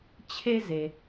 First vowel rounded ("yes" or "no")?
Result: no